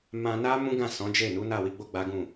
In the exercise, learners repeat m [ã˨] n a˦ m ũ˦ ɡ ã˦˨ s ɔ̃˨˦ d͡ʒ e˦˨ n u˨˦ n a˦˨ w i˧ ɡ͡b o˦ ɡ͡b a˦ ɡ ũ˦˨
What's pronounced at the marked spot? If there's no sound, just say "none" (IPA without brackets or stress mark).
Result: ã˧